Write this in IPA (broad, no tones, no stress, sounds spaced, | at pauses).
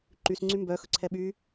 ǃ y s ŋ͡ǀ y m b œ x ɵ ǀʰ ɛ ɓ y